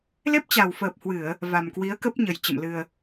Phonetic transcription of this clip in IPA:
l e˦˥ p̚ t͡ɕ a˨˩ w f əː˨˩ p̚ h w ɨ˧˩˨ ə̯ | v a˨˩ m k w i˨˦ ə̯ k ə˦˥ p̚ ɲ ə˨˩ j t͡ɕ ə̰˧˨ m l ɨ˨˩ ə̯

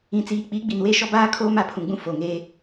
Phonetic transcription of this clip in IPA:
ĩ˨ t͡s iː˨ k͡p i˨˦ ɡ͡b i˨ n w e˦ ʃ ɔ˦ b aː˦ kʰ oː˦ m a˨ pʰ ũ˨ ɡ͡b ũ˦ f o˨ ŋ eː˦

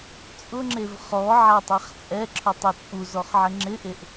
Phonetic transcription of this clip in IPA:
t͡sʼ ʊ ŋ͡ǁ e v χ ɔ ʕ a tˤ ɛ χ t͡sʼ ɛ ǁʰ ʊ tˤ ɛ t͡sʼ u z ɔ χ ʕ ɪ ŋ͡ǁ ɪ ʔ e ʔ

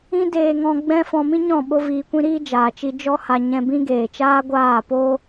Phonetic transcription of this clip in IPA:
ĩ˦ d eː˧ ŋ ɔ̃˧ ɡ͡b ɛ̃˦ f ɔ̃˧ m ĩ˦ ɲ ɔ̃˦˨ ɓ o˦ v iː˧ kʷ ĩ˦ ɾ iː˦ d͡ʒ aː˨ t͡ʃ i˧ d͡ʒ ɔ˦ h a˧ ɲ ɛ̃˧ b ĩ˦ ɡ eː˨ t͡ʃ aː˦ ɡʷ aː˦˨ p o˦

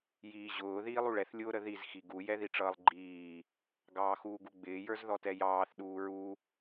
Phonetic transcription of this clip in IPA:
j iː ʑ ʊː ð iː lˠ u ɭ ɛ θ lʲ ʊː ɾ ə ð i z x i ɡ u j ɛ ð i ʈ͡ʂ ʌː lˠ ɡ͡ǃ iː | ɡ ɑː x uː ɡ u ɡ͡b ɪː j ə˞ z ð ɔ t ɛ j ɑː θ ɗ uː ɹ u

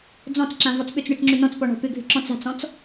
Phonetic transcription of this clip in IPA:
d͡z ɔ̃ t͡s ǁ ã v ɔ t͡s ɓ ʏ t͡s ɳ ʏ t͡s ŋ͡ǁ ʏ n ɔ̃ t͡s p ɔ ɳ ɔ̤ p ʏ ɡʱ ʏ ǁ ɔ̃ t͡s a̤ t͡s ɔ̃ t͡s

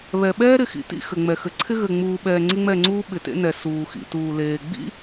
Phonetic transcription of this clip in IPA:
β ɛ˨ ɓ ɛː˦ ɾ ɪ˨ x ḭ˨ t ḭ˦˨ x ɘ˨ ŋ͡m ɛ˨ x ɘ˨ ǀʰ ɪ˦ ɣ ɘ˨ ŋ͡m uː˨ ɓ ɛː˨ ŋ͡ǀ ɪ˦ ŋ͡m ɛ˦˨ ŋ͡ǀ uː˦ ɓ ɪ˨ t ḛ˦ n ɛ˨ s uː˨ x ḭ˨ t uː˨ l eː˨ ɡ͡b ḭ˦

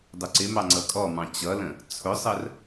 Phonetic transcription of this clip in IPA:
dˤ ʊ ǀ ɪ m ɑ ŋ͡ǀ ʌ kʼ ɔ m ɑ̃ t͡ɕ ʌ l ə̃ | t͡sʰ ʊ sˤ ə r

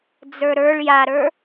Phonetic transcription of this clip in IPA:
d͡z ə˞ ɾ ə˞ ɭ j a ɾ ə˞

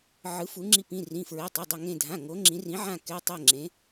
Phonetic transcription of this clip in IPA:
ʕ ɯ˧˥ f u˧˥ ŋ͡ǁ i˥˧ p ĩ˧˥˧ r ĩ˧˥˧ f ɹ e˧˥˧ tˤ ɛ˧˥˧ dˤ ʌ˥˧ ŋ ẽ˥˧ dʱ ã˧˥˧ ŋ o˧˥ ŋ͡ǁ ĩ˧˥ r ĩ˧˥ ʕ ã˥˧ k ɛ˧˥˧ tˤ ɛ˥˧ ŋ͡ǁ ẽ˧˥

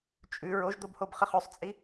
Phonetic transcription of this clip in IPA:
t͡ʃʼ ʉ ɹ o ʒ d̪ o b h o b χ ɘ χ ʉ sˤ t͡sʼ i

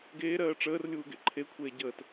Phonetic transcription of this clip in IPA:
ɡ eː ɾ ɜː ʈ͡ʂ əː r lʲ uː ɡ ḛ ǃʰ e kʷʰ eː ɟ əː t

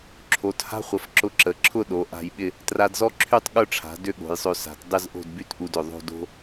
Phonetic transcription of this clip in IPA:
ǁʰ o˩˧ t h a̤˥ χʷ ə˩˧ f ǁ ʊ˧ ǁ ə˩˧ ǁʰ ʊ˥˧ ɗ o˩˧ ʔ a̤˧ j ɓ ɪ˥˧ | t r a˧ d z ɔ˥ ǁʰ y˥˧ tˤ ɠ ʊ˥˧ ʈ͡ʂʰ a̤˩˧ d ʏ˥˧ ɠ o̤˩˧ j sˤ ø˧ s a̤˩˧ t dˤ ɪ˥˧ z ʔ o̤˥˧ d b y˥ t ʔ u˧ d ʏ˧˩ ðˤ o̤˥˧ d o̤˥

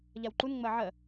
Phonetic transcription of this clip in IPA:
ʎ a w ǃ u n ŋ͡m ɜ ʕ ɜ

